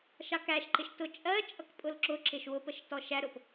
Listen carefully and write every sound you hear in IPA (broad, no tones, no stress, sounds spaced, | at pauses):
ʃ ɑ k æ ʃ ǃ ɪ ʃ t ʊ t͡ʃʼ ɜ t͡ʃʼ ʌ k pʼ ʊ l ǁ ʊ ǁ ɪ ʃ w ʊ p ə ʃ t ɔ ʃ æ ɾ ʊ p